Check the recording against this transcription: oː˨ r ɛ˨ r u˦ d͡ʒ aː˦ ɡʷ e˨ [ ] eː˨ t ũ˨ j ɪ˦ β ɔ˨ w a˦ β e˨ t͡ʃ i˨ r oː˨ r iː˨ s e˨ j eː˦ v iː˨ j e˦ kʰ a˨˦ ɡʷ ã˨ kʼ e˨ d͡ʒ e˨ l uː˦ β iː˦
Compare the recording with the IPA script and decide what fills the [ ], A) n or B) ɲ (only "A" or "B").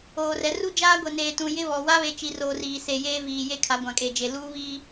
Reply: A